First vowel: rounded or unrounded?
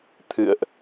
unrounded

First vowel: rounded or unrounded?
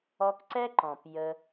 rounded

